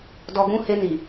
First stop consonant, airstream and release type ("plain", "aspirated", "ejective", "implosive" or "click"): plain